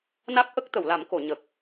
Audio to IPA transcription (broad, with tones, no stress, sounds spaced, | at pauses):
n a˦˥ k̚ ʔ ə˦˥ k̚ t̪ ə˨˩˨ w l a˨˩˦ m k o˨˩˨ ɲ ə˨˩ k̚